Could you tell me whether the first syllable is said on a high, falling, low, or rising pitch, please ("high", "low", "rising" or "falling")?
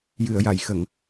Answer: low